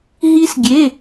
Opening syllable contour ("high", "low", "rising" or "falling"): high